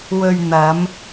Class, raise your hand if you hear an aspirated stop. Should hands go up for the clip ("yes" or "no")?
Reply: no